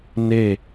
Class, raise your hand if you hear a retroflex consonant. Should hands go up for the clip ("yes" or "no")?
no